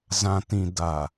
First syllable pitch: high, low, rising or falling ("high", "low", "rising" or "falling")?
low